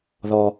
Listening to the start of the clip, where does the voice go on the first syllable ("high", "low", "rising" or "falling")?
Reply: low